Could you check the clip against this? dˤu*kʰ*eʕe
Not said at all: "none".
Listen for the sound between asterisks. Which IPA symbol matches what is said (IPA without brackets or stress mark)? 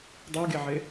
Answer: ɡ